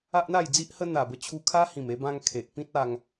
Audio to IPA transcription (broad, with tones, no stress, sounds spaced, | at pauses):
a˦ ʔ n̪ a˥˧ j d͡z i˦ ʔ h ə˦ n̪ a˨˩ b ə˧ t͡ɕʰ u˧ kʰ a˦ h ĩ˨˩ m e˧ b ã˧ ŋ kʰ e˨ ʔ p ĩ˦ t̚ a˧ ŋ